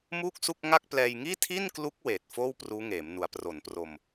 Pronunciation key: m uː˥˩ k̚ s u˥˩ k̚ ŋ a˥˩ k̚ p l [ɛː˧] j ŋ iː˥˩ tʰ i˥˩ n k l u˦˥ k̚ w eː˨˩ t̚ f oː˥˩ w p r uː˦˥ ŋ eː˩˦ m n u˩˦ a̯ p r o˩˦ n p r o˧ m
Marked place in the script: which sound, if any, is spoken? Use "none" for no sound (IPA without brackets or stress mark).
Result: ɛː˧